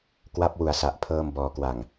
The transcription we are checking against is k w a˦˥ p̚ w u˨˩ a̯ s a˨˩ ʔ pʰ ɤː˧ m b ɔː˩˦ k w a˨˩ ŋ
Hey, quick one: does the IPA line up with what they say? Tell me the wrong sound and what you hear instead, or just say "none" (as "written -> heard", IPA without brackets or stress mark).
none